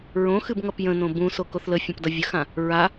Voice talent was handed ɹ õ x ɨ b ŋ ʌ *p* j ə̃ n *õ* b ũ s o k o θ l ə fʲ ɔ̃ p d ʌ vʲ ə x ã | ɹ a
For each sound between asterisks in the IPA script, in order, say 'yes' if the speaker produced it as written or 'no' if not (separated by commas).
yes, yes